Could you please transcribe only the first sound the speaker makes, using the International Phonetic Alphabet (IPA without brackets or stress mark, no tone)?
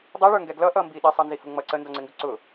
dˤ